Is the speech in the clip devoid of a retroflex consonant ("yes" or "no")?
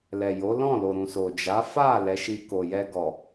yes